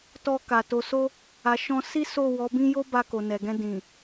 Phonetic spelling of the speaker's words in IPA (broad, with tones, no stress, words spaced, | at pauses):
tɔ˧ka˨ to˨so˧ | a˨ʃɔ̃˧ si˦ so˦˨ wɔ˨˦bĩ˦ jo˦ ba˧ko˨nɛ˨ɡɛ̃˧ dĩ˨